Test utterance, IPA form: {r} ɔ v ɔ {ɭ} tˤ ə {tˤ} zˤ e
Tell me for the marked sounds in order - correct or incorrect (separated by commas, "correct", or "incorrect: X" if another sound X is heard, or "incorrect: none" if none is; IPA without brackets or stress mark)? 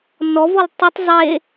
incorrect: n, incorrect: l, correct